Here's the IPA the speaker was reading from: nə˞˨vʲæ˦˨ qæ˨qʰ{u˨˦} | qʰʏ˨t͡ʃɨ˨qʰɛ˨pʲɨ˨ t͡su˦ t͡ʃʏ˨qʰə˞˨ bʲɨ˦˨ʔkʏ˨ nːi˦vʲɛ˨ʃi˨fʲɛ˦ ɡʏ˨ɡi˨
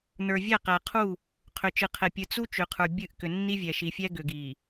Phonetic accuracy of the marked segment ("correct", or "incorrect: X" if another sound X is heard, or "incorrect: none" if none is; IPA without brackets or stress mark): incorrect: u˦˨